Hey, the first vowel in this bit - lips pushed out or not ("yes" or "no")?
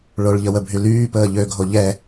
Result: yes